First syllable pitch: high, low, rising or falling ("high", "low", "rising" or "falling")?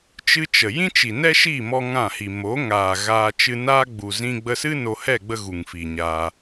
high